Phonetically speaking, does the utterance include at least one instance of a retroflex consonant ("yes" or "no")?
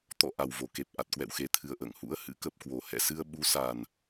no